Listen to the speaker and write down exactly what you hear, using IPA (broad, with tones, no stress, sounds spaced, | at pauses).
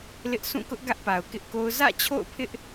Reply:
l ɪ˦ ʔ sʰ ũ˦˨ k ʊ˦ ʔ ɡ ä˦ ʔ p a˨ ʊ̯ k ɪ˦ ʔ k o˦ ʊ̯ z ä̰˦˨ t͡ɕʰ o̰˦˨ ʊ̯ pʰ ɪ˦ ʔ